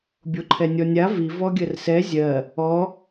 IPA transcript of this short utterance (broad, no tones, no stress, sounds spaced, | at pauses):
bʲ o ǃʰ ɛ nʲ ɔ nʲ a v i v ɔ ɡʲ ɜ r s ɛ zʲ ɜ | ɔ